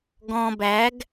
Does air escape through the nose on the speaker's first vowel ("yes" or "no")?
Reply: yes